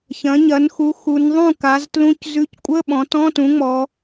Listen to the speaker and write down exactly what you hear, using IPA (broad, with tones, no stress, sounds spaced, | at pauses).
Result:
ç ɐ̃˩˥ ɲ ɐ˩˥ n x u˩˥ x u˩˧ n ðˤ ũ˥˩ k a˩˥ z t l ũ˧˥˧ c z ʉ˧˥˧ c kʷʼ ə˧˥˧ ɓ ɔ̃˩˧ t ɔ̃˧˥˧ t ũ˩˥ ŋ͡m ɔ˩˧